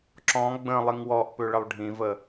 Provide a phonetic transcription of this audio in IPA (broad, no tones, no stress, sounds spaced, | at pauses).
ǁ ɔ̃ ɡ͡b ə̃ lˠ i ŋ w ɔ ʔ p ø ɭ ə lˠ ɖʱ ĩ v ə